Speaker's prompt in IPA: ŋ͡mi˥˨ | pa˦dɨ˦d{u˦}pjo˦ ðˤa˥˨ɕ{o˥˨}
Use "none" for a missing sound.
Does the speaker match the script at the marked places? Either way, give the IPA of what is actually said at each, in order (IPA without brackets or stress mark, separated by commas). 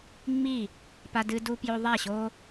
u˦, o˦